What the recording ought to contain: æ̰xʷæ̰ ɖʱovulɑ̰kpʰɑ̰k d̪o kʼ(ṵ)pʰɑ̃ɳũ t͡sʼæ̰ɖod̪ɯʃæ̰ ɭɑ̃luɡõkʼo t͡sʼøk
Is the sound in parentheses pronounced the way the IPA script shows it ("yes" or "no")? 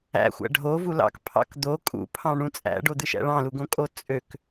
yes